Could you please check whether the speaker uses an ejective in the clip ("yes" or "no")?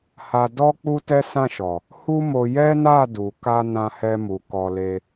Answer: no